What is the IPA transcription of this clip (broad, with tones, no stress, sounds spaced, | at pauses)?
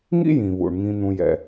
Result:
ŋ ḭ˥ j ĩ˩ β ṵ˩ ɳ ŋ ĩ˨ n̪ ũ˨ j ɛ̰˨